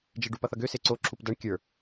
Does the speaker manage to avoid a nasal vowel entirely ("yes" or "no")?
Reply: yes